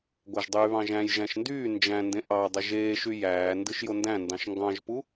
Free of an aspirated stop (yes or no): yes